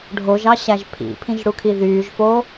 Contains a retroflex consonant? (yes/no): yes